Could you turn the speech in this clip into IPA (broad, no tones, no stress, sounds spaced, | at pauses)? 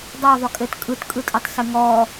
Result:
dˤ ɑ ðˤ ʏ kʼ ɘ t kʼ ɯ t kʼ ɯ tʼ ɘ tˤ s ɘ ŋ ɔ